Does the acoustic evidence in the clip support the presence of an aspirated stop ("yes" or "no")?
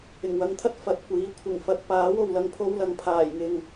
yes